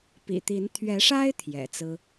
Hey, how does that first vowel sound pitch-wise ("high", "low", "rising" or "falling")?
low